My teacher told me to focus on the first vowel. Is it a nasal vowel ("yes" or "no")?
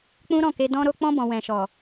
yes